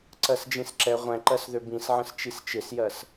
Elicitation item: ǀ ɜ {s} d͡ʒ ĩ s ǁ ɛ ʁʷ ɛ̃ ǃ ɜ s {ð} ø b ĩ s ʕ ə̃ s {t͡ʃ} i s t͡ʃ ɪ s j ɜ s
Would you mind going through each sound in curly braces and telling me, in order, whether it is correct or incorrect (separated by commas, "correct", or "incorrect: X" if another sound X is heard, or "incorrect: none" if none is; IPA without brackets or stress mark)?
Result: correct, correct, correct